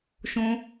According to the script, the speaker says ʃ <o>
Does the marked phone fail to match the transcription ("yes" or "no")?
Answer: yes